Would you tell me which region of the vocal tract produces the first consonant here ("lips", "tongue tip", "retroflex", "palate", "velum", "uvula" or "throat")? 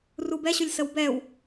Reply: tongue tip